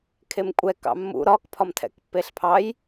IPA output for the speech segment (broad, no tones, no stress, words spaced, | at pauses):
kʰemkʷʼɛ kɑ̰mːṵ ɾɒkpʰɒm tʰɛ̰kpːeɬpʰɑj